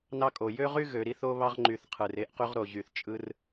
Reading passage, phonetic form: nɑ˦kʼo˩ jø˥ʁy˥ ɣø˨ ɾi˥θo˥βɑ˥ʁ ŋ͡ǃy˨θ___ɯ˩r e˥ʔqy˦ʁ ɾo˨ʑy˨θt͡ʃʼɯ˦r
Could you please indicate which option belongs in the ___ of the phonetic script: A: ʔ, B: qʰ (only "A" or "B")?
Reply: B